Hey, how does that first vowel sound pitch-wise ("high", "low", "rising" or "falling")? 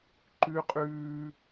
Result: high